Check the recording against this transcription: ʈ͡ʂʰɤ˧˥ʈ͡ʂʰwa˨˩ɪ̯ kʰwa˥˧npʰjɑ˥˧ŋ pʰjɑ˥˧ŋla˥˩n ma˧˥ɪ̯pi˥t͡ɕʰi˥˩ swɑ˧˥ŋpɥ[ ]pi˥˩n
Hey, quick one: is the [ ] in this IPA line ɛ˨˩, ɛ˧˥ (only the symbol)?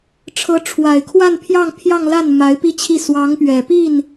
ɛ˨˩